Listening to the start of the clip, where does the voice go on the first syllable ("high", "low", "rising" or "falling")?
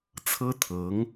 high